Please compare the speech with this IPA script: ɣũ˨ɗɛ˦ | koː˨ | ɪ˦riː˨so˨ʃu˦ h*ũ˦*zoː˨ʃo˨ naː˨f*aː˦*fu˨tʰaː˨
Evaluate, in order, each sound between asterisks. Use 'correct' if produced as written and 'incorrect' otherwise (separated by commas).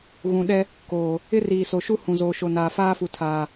incorrect, correct